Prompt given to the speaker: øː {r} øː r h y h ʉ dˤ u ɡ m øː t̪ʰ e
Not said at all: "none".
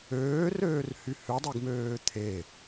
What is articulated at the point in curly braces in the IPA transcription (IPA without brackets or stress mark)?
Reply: r